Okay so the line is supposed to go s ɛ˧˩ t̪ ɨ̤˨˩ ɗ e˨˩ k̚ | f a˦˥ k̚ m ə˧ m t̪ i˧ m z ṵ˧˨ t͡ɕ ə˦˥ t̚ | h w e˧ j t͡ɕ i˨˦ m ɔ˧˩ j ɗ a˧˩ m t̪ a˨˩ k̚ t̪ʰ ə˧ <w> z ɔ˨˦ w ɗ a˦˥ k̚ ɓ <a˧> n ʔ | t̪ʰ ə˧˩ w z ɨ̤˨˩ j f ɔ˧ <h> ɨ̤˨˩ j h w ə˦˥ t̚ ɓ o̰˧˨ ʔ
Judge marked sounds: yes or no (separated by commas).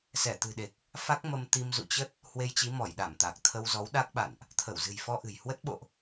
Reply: yes, no, no